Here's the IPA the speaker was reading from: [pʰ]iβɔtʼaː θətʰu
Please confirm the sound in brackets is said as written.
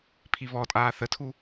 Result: yes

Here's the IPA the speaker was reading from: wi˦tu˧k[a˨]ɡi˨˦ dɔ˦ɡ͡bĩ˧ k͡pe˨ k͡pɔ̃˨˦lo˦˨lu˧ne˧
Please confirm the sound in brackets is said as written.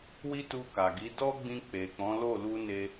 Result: yes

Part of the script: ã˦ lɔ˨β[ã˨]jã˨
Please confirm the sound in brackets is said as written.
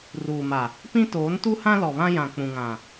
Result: no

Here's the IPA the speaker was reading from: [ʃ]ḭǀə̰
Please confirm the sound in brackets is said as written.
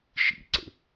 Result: yes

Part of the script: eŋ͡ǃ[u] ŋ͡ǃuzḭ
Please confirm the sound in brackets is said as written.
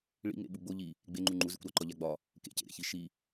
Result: yes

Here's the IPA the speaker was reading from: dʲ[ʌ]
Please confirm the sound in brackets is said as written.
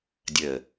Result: no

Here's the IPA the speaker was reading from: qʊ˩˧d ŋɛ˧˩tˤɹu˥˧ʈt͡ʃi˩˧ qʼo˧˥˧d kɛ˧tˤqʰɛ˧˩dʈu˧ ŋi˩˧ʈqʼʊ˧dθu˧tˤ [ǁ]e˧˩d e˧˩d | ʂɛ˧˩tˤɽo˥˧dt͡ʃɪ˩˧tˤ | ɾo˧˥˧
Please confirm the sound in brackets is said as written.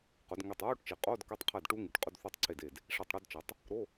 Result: no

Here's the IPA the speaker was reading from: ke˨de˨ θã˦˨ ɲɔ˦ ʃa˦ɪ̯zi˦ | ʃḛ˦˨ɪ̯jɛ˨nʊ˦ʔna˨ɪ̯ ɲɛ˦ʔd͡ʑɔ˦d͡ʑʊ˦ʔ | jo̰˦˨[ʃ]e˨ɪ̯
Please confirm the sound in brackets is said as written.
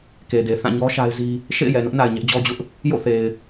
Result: no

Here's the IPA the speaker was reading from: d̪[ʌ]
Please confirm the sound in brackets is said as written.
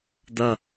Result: yes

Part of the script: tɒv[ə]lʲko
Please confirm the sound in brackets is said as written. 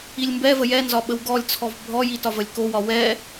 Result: yes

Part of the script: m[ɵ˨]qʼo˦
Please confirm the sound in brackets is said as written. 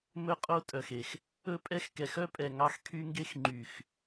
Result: no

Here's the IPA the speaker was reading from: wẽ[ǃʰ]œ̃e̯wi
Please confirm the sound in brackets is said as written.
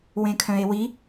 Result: no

